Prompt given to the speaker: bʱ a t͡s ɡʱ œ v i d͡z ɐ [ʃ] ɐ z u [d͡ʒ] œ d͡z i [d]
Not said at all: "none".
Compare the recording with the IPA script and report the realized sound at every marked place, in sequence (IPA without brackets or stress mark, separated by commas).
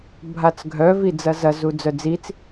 z, d͡z, t͡s